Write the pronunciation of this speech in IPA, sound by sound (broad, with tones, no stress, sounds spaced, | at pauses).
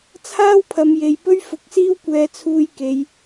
t͡sʰ aː˥ w pʰ ɐ˨˧ m j e˨ j p ɵ˥ ɥ f ʊ˨˥ k̚ s iː˥ w kʷ ɛː˧ t͡sʰ uː˧ j k e˨˧ j